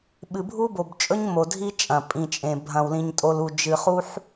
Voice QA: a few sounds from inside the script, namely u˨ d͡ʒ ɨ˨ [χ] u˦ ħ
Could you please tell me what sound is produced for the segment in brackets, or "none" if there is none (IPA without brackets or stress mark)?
χ